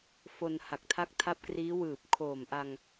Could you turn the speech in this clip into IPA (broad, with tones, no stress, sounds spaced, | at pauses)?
f o˧ n h a˨˩ k̚ tʰ a˦˥ k̚ tʰ a˦˥ p̚ k r iː˦˥ w ɯː˨˩ p̚ kʰ oː˨˩ m ʔ a˧ ŋ